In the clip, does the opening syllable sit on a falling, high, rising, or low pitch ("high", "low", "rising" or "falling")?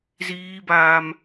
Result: high